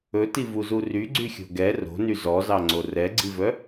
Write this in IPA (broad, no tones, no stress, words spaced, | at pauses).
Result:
ɵtivuzu ryɡ͡ǀyxʲo̤ ɡɛ ro̤ny zɔzɑŋ͡ǀo rɛɡ͡ǀivœ